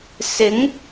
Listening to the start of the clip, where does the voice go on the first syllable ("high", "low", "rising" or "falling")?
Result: rising